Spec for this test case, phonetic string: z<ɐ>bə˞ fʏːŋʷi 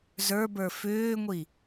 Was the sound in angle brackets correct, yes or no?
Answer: no